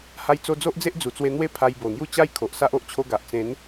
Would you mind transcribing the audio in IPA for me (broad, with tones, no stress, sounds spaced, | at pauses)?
h a˧ j t͡s o˧ d͡z o˦ ʔ d͡z e˦ ʔ d͡z u˨˩ t͡s w e˧ n̪ w e˥˧ pʰ a˧ j b o˨˩ n̪ j u˥˧ t͡ɕ a˦ j kʰ o˨ ʔ s a˦ ʔ o˨ ʔ t͡ɕʰ o˧ ɡ a˨ ʔ t͡s ẽ˨˦ n